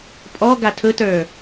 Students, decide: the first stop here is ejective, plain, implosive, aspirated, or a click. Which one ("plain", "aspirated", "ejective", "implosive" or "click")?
ejective